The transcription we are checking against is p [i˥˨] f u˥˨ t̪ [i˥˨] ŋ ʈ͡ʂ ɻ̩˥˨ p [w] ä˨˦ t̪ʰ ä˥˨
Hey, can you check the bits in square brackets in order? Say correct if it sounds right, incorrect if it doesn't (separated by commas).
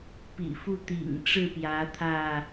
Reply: incorrect, incorrect, incorrect